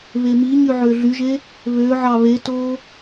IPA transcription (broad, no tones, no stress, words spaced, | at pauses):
βemiɲy ʕøɮyʒe | βøʕɑ βeto